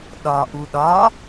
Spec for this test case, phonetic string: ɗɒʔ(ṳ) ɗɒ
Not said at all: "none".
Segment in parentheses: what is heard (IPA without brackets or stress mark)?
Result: u